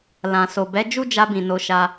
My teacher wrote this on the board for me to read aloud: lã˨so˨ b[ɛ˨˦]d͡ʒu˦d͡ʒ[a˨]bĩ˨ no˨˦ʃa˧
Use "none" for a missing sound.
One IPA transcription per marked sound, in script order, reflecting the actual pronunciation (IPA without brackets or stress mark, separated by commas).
ɛ˨˦, a˧